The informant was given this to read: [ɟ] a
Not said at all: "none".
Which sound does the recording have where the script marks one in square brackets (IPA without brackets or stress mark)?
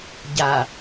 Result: ɟ